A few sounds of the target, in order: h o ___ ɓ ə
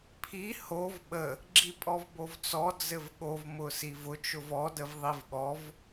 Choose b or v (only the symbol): v